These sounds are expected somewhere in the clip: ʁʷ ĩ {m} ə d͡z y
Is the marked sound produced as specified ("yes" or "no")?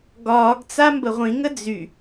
no